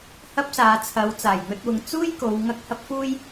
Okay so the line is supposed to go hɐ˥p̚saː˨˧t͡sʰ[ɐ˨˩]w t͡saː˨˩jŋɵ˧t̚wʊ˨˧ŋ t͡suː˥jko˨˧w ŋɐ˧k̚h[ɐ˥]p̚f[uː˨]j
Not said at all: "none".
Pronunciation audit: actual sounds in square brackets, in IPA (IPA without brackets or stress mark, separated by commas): ɐ˨˧, ɐ˥, uː˥